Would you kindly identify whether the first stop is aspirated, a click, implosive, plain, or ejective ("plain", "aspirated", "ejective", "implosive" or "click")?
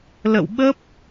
implosive